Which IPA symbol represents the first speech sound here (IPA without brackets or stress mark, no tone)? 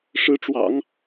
ʂ